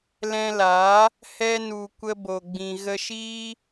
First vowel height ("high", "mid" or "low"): mid